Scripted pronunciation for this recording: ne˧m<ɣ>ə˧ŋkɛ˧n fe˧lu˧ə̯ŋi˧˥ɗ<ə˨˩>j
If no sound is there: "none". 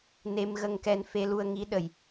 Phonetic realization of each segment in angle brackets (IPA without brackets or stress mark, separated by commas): ɣ, ə˨˩